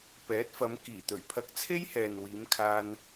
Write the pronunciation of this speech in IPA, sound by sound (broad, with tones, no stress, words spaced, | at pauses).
pɛː˨˥t̚fɐ˨˧mkiː˨˩t̪ɵ˨˩ɥ pʰɐ˧k̚t͡sʰe˥jhɛː˨nwiː˨˧m kʰaː˧n